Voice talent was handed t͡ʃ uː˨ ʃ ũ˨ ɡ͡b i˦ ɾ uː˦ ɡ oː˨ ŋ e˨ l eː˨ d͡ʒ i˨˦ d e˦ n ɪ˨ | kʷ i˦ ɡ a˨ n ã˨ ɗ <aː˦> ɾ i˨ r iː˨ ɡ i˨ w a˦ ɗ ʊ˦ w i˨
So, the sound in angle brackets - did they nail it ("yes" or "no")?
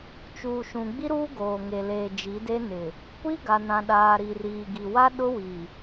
no